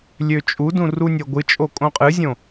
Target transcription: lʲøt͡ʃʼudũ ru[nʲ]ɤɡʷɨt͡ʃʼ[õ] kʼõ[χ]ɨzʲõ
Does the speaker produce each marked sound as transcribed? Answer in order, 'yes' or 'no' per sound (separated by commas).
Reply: yes, no, no